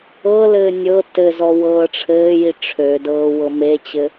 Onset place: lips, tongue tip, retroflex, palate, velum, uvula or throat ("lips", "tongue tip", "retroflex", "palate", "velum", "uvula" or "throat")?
tongue tip